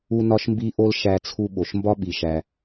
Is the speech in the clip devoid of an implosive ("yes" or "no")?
no